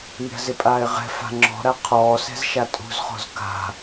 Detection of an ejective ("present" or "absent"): present